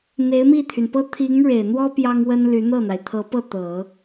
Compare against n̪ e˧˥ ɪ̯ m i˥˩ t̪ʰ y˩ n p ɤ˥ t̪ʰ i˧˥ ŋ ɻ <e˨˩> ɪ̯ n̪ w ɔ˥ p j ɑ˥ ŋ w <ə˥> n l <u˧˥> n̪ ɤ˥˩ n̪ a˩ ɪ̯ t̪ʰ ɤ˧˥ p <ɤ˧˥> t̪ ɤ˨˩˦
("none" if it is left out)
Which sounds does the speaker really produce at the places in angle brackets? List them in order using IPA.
e˨˩, ə˥, y˧˥, ɤ˥˩

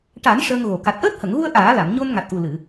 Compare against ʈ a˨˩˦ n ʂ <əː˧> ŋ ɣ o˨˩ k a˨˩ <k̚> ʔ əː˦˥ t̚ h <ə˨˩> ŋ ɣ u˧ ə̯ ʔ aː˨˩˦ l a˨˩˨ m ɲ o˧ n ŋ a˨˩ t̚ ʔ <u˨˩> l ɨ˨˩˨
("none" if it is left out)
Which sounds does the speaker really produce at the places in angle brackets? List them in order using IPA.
əː˧, t̚, ə˨˩˨, u˨˩

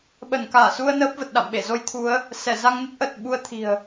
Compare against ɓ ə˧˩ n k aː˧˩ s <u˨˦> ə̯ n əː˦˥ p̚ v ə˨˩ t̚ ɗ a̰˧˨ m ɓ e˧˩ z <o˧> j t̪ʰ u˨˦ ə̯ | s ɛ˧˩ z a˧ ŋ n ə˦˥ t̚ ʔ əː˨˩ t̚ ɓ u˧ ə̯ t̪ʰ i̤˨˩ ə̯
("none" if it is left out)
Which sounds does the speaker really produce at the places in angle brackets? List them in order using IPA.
u˧, o˧

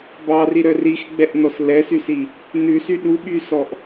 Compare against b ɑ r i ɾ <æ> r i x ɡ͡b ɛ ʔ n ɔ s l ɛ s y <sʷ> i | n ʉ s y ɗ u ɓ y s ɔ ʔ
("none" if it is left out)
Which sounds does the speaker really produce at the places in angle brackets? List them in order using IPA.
œ, s

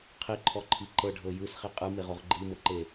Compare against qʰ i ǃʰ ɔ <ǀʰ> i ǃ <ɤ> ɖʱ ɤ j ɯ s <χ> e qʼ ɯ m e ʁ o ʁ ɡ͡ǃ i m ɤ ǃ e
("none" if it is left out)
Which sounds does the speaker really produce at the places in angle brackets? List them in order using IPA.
ǃʰ, ɤ, χ

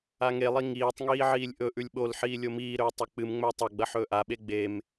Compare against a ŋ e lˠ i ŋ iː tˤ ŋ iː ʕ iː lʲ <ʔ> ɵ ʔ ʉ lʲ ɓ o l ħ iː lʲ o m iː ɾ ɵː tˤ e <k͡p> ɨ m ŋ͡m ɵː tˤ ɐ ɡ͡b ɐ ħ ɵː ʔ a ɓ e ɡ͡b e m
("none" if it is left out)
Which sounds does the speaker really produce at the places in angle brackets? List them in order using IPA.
ʔ, k͡p

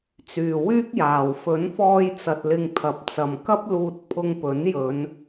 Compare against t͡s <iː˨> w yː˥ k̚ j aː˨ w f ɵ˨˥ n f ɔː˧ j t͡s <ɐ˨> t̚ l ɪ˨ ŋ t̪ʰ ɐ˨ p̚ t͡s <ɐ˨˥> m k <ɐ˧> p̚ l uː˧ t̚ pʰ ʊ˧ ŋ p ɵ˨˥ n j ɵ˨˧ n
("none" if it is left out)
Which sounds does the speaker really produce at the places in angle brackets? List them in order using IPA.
yː˨, ɐ˨, ɐ˨, ɐ˥

